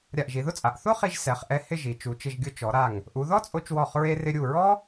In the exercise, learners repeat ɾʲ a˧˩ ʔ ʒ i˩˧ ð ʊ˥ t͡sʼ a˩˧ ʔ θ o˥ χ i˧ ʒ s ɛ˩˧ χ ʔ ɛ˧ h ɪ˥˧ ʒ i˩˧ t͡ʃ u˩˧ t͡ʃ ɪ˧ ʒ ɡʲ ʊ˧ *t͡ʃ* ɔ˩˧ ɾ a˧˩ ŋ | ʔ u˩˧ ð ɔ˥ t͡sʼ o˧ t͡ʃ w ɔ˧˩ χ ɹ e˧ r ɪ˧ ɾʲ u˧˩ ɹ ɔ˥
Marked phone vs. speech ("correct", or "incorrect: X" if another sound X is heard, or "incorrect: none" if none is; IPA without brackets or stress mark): correct